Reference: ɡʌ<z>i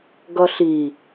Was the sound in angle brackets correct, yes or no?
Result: no